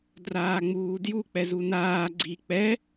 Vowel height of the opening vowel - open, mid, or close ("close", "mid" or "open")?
open